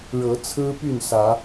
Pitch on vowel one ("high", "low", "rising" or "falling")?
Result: rising